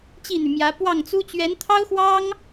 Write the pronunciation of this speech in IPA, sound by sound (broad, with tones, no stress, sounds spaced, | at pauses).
t͡ɕ i˥˩ n̪ y˩ m j ä˧˥ p w ɑ˥˩ ŋ t͡s u˥ t͡ɕ ɥ ɛ˧˥ n t̪ʰ ɑ˥ ʊ̯ x w ɑ˥ ŋ